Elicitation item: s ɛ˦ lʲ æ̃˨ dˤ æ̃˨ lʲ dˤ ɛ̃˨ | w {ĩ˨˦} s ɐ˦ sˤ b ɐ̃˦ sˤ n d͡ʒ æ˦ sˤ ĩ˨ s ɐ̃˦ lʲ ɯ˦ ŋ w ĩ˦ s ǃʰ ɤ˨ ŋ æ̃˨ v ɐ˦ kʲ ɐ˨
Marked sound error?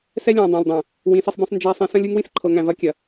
no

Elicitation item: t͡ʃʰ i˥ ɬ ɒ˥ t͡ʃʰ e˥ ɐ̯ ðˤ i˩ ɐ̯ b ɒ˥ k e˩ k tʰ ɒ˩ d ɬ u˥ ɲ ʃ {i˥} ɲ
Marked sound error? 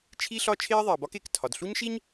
no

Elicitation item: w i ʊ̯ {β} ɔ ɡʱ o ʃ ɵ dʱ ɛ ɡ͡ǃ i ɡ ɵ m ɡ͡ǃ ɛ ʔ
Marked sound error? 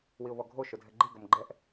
no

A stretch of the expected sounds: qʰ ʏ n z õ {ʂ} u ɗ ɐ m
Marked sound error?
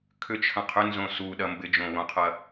yes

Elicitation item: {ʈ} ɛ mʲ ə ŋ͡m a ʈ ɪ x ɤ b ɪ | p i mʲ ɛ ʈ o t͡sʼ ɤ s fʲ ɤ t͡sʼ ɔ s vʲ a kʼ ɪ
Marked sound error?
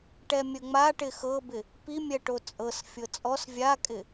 no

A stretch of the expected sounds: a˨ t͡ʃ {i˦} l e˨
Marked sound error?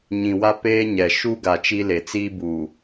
no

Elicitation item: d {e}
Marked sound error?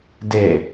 no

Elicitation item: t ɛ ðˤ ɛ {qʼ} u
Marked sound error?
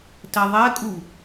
yes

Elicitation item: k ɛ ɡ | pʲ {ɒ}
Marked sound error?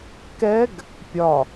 no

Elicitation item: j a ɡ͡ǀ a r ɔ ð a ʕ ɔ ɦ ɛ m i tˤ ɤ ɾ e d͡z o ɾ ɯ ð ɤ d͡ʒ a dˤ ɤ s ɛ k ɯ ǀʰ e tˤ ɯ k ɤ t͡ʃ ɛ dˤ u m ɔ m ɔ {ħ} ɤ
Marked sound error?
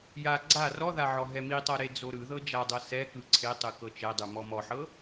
no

